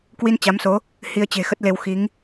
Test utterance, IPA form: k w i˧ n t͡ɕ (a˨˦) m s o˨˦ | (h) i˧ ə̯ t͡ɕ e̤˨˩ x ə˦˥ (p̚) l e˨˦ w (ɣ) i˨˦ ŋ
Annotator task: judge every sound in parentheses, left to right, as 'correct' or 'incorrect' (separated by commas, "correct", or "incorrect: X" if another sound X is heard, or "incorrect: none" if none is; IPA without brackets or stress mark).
correct, correct, incorrect: t̚, incorrect: x